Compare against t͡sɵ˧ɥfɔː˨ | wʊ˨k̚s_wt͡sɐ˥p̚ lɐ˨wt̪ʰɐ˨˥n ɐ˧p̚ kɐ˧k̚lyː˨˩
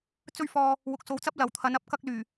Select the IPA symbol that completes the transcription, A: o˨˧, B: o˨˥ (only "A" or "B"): A